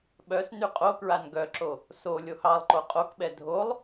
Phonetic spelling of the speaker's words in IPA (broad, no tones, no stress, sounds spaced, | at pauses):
ɓ œ s n y qʼ o k ɹ a n ɡ œ ǁ o | s o lʲ o h ɑ lˠ ǃ o qʼ o k ɓ ɛ dʱ o lˠ